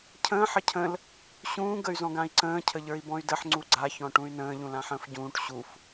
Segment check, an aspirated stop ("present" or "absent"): present